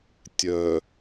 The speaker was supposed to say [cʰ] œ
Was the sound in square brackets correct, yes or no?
no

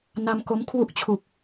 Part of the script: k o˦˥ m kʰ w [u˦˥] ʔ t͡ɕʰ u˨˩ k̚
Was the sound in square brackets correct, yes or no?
yes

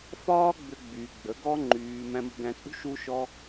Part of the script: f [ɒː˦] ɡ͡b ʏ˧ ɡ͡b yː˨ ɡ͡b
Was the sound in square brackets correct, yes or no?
yes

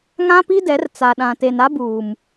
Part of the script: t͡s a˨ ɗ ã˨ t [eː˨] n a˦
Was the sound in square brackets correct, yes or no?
no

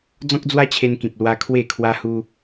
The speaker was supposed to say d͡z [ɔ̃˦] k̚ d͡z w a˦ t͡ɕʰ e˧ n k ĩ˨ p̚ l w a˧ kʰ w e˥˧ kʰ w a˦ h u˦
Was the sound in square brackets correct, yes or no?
yes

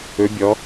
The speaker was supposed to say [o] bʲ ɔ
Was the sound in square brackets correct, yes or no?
no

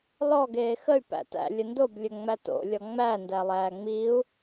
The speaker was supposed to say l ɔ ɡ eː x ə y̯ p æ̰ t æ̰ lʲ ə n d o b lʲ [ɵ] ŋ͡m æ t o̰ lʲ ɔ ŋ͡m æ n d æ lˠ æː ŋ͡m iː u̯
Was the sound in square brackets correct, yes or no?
yes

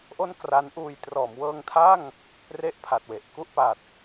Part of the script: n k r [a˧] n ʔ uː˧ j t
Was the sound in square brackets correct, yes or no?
no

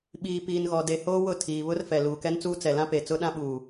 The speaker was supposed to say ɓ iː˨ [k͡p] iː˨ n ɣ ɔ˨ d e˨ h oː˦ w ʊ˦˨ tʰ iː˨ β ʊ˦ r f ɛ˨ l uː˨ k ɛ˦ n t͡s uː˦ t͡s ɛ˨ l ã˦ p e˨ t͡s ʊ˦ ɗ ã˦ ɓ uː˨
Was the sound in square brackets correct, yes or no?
no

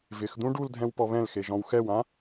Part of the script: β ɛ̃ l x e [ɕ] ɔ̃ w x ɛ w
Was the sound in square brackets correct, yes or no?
no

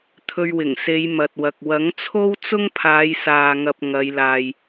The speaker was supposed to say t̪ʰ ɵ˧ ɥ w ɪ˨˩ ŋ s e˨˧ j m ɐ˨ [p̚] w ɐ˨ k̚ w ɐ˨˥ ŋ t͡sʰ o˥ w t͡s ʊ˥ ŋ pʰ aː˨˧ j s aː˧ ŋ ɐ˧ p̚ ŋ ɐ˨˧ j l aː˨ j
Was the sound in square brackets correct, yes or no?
no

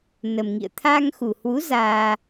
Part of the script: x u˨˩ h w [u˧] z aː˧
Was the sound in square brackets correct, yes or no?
no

